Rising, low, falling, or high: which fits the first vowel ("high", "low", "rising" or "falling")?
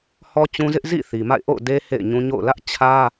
high